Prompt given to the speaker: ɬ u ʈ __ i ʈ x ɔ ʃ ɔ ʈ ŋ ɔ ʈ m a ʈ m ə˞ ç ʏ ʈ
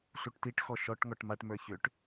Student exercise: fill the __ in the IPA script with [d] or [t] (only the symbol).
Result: t